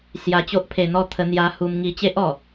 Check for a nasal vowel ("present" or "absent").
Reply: absent